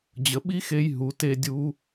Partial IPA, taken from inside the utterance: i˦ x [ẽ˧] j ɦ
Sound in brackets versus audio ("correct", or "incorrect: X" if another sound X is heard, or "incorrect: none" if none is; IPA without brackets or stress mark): incorrect: e˧